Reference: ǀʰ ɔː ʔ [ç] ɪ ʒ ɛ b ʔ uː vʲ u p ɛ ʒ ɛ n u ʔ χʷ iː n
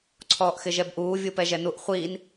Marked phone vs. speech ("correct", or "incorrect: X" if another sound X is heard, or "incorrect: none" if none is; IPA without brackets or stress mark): incorrect: x